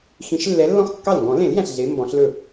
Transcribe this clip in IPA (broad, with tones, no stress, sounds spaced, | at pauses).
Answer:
x ĩ˨˩˦ ʃ lː ɛ˨˥ lː ɔ̃˥˩ x kː ɑ˥˩ l ŋ ɡ ɔ̃˨˩˦ l ẽ˨˩˦ l j æ̃˨˩ ɬ ɮ e˨˥ m b ɔ̃˨˩˦ ɬ l ɵ˥˩